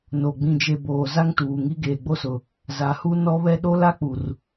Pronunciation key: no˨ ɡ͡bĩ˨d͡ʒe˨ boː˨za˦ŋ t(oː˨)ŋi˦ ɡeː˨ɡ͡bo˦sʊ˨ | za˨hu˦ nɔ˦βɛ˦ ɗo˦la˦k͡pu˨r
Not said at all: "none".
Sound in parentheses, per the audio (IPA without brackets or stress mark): uː˨